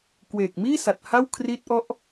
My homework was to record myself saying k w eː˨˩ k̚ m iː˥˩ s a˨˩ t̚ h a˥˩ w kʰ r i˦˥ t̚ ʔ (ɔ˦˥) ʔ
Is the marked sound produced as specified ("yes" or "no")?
yes